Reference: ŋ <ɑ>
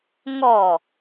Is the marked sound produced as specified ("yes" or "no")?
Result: no